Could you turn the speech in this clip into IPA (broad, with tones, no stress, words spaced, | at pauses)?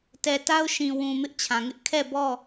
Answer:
tɛ˨ta˦ʊ̯ ʃĩ˨wũ˨ mɪ˦ʔt͡ɕʰã˨ŋɪ˦ʔ kʰɛ˦˨bɔ˦˨